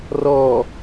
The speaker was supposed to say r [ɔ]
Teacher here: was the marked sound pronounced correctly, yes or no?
no